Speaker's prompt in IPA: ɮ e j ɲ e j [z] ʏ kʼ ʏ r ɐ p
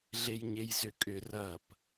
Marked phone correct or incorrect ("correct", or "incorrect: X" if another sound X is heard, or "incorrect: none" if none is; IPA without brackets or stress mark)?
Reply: correct